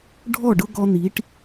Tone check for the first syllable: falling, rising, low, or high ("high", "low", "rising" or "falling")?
falling